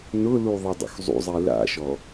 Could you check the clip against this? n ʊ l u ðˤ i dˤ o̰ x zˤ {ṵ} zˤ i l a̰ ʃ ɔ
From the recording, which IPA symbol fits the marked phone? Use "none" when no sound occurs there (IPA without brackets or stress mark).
ṵ